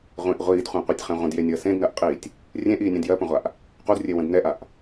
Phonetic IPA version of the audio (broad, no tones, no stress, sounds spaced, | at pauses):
ʁʷ ĩ ʔ ʁʷ iː d χʷ ɛ̃ qʷ ɛ tʲ χ ɛ̃ ʁʷ ə̃ d j e nʲ əː s ẽ d n ɜ ʔ qʼ iː tʲ | rʲ ẽ ʔ iː nʲ ɛ̃ d j ɜ p ə̃ ʁʷ a ʔ | q u d rʲ e w ə̃ d n ɛ ʔ a ʔ